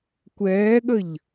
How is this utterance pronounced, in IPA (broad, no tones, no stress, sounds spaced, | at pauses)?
kʷ ɛː ɠ ə ʎ